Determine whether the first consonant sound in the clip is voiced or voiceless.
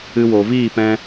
voiced